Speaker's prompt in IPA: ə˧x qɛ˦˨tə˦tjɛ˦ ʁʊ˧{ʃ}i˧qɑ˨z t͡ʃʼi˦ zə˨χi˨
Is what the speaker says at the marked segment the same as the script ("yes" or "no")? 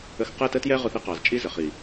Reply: no